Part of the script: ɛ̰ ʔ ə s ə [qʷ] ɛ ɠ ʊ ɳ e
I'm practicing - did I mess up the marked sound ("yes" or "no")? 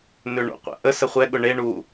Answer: yes